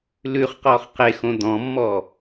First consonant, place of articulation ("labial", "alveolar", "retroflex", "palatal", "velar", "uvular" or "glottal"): alveolar